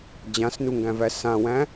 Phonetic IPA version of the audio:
d͡ʑ ã s n u ŋ ɡ æ̃ v æ s ã w æ̃

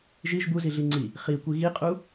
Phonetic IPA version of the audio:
ʒ i ʒ b u z i ɮ i ŋ͡ǀ i | χ i kʷ i ɣ i qʼ u

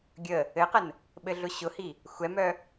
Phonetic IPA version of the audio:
ɡʲ ə | ɘ q ə n | ɓ ɘ ɮ ʊ ɕ ʊ h i | xʷ ɛ m œ

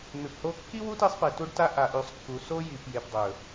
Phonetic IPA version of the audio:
n̪ ʉ˨ p h o˦ kː i˦ w u˦ t i˦ sˤ p e˨ t u˦ ɖ t a˦ ʔ a˨ ʔ ʉ˨ sˤ kː u˨ s o˦ j i˨ p j e˨ p dˤ ɵ˨

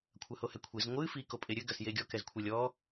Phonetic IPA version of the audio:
kʷʰ ɐ h o h ɛ kʷʰ e z ŋʷ ɨ f i k o pʼ e ɾʲ ɘ ɡ ɐ s j e ɡʲ ɔ k ɛ z kʷʰ e lʲ ɔ

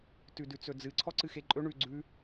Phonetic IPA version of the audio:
t ʉ d ʉ t͡s ɵ d͡z ɨ ǀʰ ɔ ǀ ɨ x e ǃʼ ɵ ɳ ʉ ɡ͡ǀ ʉ

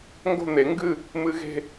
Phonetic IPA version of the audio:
ŋ ɡ o̤˥˧ n̪ e˨˩˦ ŋ ɡ ɨ˥˧ | m ɨ˦˥ ɣ e̤˥˧

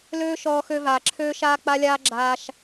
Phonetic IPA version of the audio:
l øː˦ ʃ ɔː˧ x ø˧ v aː˨ ǁʰ øː˦ ʃ aː˦ k͡p a˦ lʲ aː˦ ɡ͡ǁ aː˧ ʃ

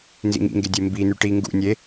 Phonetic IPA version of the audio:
n z ḭ ŋ ḭ ŋ ɡ e dʲ e m b i n y ʈ i ŋ ɡ ṵ nʲ e

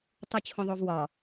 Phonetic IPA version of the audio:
tˤ u t͡ɕʰ õ ðˤ o v w ɒ

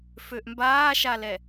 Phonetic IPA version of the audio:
f ø ʔ m b aː ʃ a l ɛ

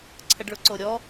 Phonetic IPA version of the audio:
ǀʰ ə ɖ ɭ ʊ ǀ o ɾʲ ɔ

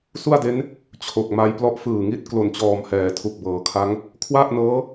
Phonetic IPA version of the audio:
s u˥˩ a̯ d e˦˥ n | t͡ɕʰ o˨˩ k̚ m a˧ j p l ɔ˦˥ ʔ f ɯː˨˩ ŋ i˥˩ t̚ k l o˨˩ n t͡ɕ ɔː˨˩ m h ɛː˩˦ tʰ u˨˩ k̚ b ɤː˩˦ kʰ a˦˥ ŋ | kʰ w a˥˩ ʔ n ɤː˦˥

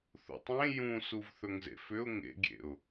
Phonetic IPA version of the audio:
θ ṵ tˤ ẽ j ũ s u v θ ɵ ŋ z ḛ f ʏ ʊ̯ ŋ ḛ ɡʲ ḛ ʊ̯

